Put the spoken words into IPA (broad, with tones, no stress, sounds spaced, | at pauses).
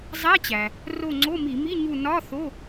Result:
zˤ æ˧˥˧ t͡ɕ æ˩ | r o˦˨ ŋ͡ǀ o˧˥˧ m i˧˩˧ m i˧˥˧ ɲ u˦˨ n ɒ˧˥˧ θ o˧˥˧